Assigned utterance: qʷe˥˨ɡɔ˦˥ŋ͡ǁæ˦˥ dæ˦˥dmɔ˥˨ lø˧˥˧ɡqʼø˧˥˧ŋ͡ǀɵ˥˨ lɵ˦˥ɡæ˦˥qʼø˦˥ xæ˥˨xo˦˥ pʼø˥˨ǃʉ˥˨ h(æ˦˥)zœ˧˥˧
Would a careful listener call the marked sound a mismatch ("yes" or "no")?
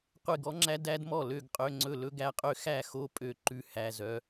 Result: yes